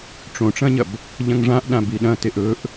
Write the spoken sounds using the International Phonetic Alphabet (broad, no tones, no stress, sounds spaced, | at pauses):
ʈ͡ʂ õ ʈ͡ʂ ɐ̃ ɲ ɐ b | ʎ ɐ̃ ŋ ʐ ã ʔ ɗ ã b i ɗ ɐ̃ t e ʔ ɵ ʔ